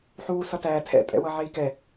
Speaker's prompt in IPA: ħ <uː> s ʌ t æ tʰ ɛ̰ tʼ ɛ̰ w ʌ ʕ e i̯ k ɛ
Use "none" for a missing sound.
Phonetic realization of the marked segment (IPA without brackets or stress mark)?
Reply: uː